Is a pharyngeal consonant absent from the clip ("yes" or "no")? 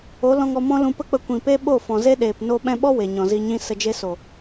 yes